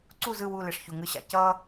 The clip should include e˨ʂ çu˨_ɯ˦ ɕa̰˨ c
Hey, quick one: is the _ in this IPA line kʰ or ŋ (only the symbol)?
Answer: ŋ